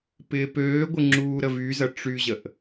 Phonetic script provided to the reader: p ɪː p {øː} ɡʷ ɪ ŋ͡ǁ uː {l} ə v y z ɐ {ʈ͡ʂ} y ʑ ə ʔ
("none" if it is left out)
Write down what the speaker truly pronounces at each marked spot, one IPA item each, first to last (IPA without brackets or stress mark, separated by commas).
øː, ɾ, ʈ͡ʂ